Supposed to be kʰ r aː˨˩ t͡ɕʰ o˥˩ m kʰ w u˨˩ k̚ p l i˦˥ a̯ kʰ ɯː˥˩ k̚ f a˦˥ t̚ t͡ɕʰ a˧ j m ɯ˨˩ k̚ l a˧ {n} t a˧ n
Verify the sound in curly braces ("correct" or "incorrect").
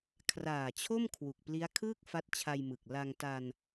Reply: incorrect